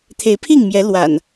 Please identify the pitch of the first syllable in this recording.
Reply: rising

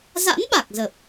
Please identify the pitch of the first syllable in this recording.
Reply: rising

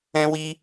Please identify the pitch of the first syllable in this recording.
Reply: high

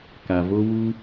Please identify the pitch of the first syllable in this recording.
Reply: low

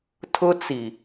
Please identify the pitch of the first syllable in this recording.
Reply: high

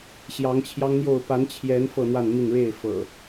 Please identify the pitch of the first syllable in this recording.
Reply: rising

